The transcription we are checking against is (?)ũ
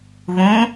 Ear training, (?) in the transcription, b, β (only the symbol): β